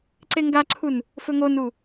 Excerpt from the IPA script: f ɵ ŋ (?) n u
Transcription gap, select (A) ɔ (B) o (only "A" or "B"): B